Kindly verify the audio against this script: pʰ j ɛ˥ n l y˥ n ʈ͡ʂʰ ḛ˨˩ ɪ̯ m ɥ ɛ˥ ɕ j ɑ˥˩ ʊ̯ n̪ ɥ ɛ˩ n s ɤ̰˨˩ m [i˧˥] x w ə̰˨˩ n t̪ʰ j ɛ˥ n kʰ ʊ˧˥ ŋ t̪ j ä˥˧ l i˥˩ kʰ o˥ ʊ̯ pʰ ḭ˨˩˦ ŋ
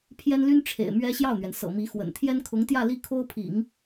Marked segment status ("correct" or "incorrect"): correct